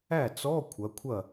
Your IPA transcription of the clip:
æ˥˩ t͡s ɔ˧˥˧ kʷʰ ɐ˩˧ kʷʰ ɐ˥˩

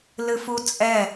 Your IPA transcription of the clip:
l ɨ f u t͡sʼ ɛ

